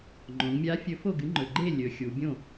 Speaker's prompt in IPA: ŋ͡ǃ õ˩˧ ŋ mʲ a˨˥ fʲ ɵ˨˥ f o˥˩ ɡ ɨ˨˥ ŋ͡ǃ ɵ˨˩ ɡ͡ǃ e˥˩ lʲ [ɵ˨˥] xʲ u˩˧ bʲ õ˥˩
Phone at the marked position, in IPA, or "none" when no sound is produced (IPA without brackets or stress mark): ɵ˩˧